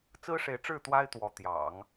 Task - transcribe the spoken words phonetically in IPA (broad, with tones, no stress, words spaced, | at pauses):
t͡sɹ̩˥ʂe˧˥ɪ̯ʈ͡ʂɻ̩˥˩ t̪wa˥ɪ̯t̪wɔ˧˥t̪jɑ̰˨˩˦ŋ